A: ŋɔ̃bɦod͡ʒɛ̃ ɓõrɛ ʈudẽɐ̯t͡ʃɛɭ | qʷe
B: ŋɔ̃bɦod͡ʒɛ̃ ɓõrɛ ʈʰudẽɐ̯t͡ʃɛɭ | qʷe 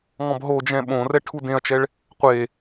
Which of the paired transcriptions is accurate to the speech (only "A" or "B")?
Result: B